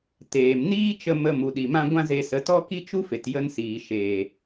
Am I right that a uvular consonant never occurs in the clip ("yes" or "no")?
yes